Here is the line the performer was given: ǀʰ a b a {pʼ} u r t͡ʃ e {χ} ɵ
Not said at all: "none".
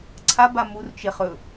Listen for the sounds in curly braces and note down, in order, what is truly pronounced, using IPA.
m, χ

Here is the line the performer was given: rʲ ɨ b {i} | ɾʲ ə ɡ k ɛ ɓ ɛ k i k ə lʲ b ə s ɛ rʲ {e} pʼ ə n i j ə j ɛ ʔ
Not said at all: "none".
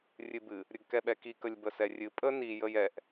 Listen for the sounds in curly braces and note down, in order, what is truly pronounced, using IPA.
ɨ, ɨ

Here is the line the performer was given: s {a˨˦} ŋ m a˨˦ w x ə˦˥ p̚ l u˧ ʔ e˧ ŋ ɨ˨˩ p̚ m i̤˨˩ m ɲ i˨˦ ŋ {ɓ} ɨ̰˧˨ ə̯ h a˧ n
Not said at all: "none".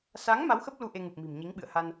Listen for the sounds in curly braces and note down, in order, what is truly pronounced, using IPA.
a˨˦, ɓ

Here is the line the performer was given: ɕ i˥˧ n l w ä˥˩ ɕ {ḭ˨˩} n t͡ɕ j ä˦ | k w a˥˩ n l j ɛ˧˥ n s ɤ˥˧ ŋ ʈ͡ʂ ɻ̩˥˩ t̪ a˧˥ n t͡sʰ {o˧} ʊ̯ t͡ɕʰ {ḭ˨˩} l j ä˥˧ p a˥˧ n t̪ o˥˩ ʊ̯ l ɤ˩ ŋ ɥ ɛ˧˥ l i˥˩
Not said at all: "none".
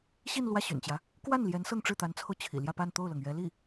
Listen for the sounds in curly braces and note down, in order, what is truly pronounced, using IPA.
y̰˨˩, o˧, ḭ˨˩

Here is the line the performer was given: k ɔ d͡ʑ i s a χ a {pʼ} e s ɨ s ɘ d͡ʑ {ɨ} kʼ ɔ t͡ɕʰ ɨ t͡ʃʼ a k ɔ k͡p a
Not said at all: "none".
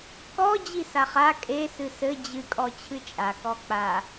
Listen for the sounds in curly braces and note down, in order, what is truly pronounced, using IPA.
kʼ, ɨ

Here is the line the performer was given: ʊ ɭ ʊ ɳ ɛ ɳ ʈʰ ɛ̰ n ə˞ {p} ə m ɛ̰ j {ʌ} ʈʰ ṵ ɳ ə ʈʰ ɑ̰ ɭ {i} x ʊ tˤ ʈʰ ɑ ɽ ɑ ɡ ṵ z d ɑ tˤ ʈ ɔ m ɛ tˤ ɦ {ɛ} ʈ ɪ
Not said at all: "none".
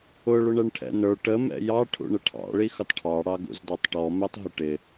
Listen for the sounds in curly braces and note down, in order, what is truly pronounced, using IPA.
ʈ, ɑ, i, ɪ

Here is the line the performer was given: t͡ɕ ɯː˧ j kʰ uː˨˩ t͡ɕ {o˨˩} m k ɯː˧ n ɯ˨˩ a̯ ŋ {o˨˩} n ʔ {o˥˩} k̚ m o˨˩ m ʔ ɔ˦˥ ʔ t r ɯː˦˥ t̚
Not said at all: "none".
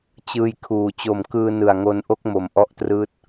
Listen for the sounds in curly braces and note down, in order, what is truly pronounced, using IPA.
o˨˩, o˧, o˥˩

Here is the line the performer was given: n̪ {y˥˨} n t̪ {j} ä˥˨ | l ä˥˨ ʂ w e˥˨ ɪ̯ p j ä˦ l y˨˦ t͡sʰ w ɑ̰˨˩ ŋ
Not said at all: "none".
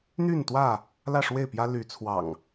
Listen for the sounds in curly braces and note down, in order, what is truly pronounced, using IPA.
y˥˨, w

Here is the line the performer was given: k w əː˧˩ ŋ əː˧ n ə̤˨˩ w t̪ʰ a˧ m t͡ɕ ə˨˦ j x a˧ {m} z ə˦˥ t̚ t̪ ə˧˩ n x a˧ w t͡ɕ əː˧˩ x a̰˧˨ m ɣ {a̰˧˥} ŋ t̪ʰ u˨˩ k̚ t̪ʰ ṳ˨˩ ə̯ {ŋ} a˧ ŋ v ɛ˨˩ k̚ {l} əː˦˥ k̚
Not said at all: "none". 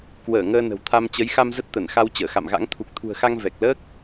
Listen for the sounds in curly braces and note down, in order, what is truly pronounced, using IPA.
m, a̰˧˥, x, l

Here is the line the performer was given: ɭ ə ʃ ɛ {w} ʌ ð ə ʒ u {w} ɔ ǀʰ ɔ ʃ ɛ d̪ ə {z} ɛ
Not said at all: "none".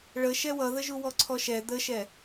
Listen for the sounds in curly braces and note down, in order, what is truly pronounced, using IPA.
w, w, ʃ

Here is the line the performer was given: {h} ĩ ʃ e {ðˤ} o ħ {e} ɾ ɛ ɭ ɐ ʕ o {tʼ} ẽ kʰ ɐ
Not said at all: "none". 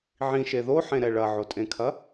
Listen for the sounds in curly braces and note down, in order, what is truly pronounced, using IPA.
ʕ, ð, ẽ, tʼ

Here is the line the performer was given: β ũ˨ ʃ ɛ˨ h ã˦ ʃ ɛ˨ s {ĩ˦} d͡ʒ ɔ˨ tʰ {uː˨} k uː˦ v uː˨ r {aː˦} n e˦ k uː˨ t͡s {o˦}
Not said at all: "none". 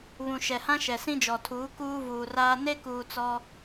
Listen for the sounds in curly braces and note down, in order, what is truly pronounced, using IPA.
ĩ˦, uː˨˦, aː˦, ɔ˦

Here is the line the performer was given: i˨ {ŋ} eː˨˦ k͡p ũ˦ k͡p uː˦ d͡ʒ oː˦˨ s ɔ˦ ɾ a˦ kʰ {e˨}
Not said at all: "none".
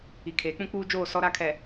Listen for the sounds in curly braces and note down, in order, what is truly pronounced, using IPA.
kʰ, ɛ˨

